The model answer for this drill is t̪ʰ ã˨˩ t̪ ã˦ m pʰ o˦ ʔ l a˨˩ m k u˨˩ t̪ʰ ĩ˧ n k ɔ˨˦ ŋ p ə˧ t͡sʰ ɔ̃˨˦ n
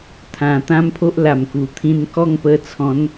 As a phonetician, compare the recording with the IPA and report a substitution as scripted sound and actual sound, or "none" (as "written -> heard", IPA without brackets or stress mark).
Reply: ɔ˨˦ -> ɔ˥˧